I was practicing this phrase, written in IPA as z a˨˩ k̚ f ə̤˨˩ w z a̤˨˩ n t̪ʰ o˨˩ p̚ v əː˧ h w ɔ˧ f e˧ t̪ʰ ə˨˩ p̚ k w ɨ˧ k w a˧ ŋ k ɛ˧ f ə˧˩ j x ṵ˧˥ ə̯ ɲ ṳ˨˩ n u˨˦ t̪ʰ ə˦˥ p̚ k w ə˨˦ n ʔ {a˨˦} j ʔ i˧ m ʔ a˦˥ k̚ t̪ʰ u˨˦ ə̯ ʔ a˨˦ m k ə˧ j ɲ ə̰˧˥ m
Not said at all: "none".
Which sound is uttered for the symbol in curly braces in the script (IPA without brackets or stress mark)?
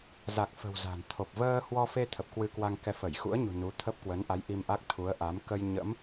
a˨˦